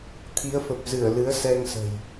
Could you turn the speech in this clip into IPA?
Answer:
t̪ʰ i˨˦ ə̯ f ə˨˩ p̚ z ɨ˧˩ ə̯ l ɨ˨˦ ə̯ s ɛ˧ ŋ s ə̤˨˩ j

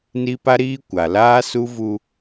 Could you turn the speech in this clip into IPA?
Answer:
n i˦ p a˦ ɾ iː˦ kʷ a˨ l aː˦ s u˦ v u˦

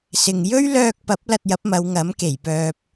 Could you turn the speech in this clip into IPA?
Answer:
s ɪ˨ ŋ j ɵ˥ ɥ l œː˧ k̚ p ɐ˨˥ p̚ l ɐ˧ t̚ j ɐ˨˥ p̚ m ɐ˨˧ w ŋ ɐ˨˥ m k e˨˩ j p œː˨ p̚

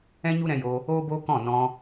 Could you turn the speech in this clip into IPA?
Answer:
ɛ̃˦ ɲ u˦ ɾ ɛ̃˧ j o˧ | oː˦ b oː˦ k ɔ̃˦˨ n ɔ̃˧

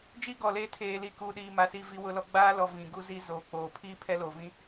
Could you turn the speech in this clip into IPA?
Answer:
d͡ʒ iː˦ ɡ ɔ˨ l eː˦ tʰ eː˨ l iː˨ k uː˨ ɗ iː˨ m a˨ s i˦˨ v i˦ w ʊ˦ l ɔ˦ ɡ͡b aː˦ l ɔ˨ v ĩ˨ ɡ u˦ z i˦ z oː˨ k͡p oː˨ pʰ iː˦ pʰ ɛ˦ l o˨ v ĩ˦

